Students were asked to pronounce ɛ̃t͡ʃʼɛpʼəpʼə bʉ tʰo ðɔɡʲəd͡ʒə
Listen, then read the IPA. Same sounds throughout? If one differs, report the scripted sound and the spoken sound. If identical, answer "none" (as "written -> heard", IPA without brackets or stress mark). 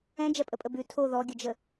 t͡ʃʼ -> d͡ʒ